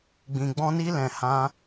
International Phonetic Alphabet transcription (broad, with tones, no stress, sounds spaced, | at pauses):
ɡ͡b ĩ˨ ɡ͡b ɔ̃˧ n i˧ l ɛ̃˨ h ã˧